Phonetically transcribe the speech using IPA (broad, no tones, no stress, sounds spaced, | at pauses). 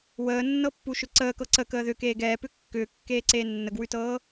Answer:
w əː nː ɤ pː u ʃ ʏ ǀ əː k ɤ ǀ ə k əː ð ʏ k eː ɡ ɛː p ʏ kː ʏː kː eː ǀ eː nː ə ɡ w ʉ t ɤː